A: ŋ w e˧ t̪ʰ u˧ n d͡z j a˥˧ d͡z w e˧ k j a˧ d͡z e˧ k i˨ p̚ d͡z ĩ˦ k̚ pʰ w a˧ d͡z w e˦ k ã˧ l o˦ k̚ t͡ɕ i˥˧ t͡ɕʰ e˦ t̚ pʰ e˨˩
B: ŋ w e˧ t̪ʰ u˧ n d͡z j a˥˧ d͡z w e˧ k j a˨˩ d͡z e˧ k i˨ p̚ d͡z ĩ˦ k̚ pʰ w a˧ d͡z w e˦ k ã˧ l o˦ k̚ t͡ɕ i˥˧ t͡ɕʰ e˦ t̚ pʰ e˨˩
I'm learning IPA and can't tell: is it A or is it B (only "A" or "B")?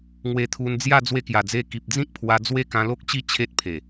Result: B